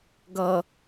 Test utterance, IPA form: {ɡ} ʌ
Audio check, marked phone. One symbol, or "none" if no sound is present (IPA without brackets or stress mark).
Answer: ɡ